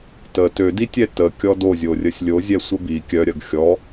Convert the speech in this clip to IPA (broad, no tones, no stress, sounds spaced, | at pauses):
t ə t ø d i tʲ ɛ t ə kʲ ɔ d o zʲ o rʲ ə sʲ lʲ o zʲ ɛ sʷ ə b i kʲ œ ɾʲ ɐ ɡ xʲ ɔ